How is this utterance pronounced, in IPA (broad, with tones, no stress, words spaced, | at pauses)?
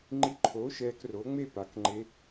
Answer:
ŋ͡ǃi˧ǃʰoː˨˥ ʃɛː˧kro˨˥ŋ͡me˥˧ pa˨˥kŋ͡ǃe˦˥